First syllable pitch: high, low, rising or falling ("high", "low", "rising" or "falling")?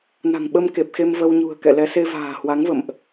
low